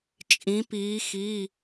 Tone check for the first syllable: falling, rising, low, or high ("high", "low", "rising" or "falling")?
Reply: rising